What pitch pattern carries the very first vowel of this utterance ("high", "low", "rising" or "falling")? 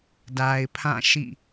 low